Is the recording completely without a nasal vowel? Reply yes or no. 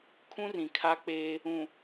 no